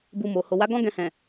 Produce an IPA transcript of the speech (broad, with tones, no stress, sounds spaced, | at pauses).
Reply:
b u˧ m o˨ h o˨ w a˨˦ ɡ ɔ̃˦ ɡ ɛ̃˧ h ɛ̃˨